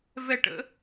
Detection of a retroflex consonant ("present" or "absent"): present